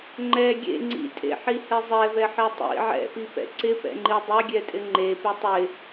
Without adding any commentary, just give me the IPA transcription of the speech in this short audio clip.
ŋ͡ǃ ɛ ɡʲ ḛ ŋ͡ǀ ḭ tʼ ḛ ħ i h ɛ zˤ ɛ v ɛ ħ ɛ tˤ ḭ ʕ ɛ̰ p i p ɛ̰ ǀ ɪ p ɛ̰ ŋ͡ǃ i dˤ ɛ ɡʲ ɛ tʼ ɪ ŋ͡ǃ e p ɪ tˤ ɪ

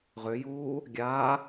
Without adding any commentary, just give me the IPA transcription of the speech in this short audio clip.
ʁ ø j uː | ɡʲ aː

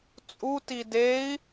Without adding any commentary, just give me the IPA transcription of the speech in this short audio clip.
t͡sʼ u t i d e i̯

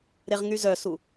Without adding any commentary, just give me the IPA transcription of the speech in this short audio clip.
ɾ e ʁ ŋ y z œ s u

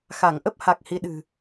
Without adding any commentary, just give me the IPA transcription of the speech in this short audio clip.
x a˧˩ ŋ ʔ ə˦˥ p̚ h a˨˩ k̚ h i˨˦ ɗ ɨ̤˨˩

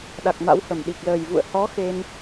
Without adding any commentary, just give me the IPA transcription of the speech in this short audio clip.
ɗ a˨˩ k̚ m a̰˧˥ w h ə˧˩ m ɗ i˨˩ k̚ l əː˨˩ j v ṵ˧˨ ə̯ h ɔ˨˦ x e˧ n

